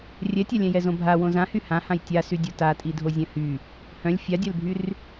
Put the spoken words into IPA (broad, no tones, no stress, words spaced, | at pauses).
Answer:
rʲɛtʲalʲɛ̃jɛ zõbʱa wõzã hyhãhãj tʲasydʲo tatʼidʱo zʲœ̃hy | hœ̃lʲ fʲadʲœlbʱyr